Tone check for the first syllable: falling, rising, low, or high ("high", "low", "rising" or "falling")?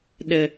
low